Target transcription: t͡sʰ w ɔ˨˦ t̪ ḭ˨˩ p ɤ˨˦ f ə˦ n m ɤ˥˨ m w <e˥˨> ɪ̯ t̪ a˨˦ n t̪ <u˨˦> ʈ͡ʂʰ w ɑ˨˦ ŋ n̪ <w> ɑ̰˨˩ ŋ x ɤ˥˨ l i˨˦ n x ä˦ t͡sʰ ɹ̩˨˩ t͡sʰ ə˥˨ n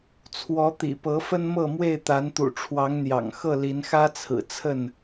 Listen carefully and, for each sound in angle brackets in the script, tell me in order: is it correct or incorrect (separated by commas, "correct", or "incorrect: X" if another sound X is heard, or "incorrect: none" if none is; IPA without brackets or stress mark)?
correct, incorrect: ṵ˨˩, incorrect: j